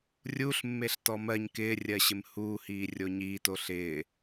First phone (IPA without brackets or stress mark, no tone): rʲ